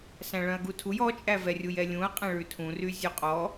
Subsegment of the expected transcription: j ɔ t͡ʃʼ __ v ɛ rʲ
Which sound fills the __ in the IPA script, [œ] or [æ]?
æ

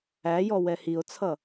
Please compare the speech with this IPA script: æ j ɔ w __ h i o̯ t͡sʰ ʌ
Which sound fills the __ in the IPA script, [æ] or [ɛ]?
ɛ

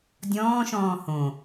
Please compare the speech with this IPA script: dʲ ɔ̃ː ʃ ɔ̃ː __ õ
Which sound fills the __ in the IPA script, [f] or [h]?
h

